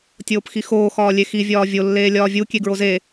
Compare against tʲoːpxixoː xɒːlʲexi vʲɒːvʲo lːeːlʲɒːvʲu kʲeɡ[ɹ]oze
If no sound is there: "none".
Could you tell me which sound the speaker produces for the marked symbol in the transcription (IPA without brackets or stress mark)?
ɹ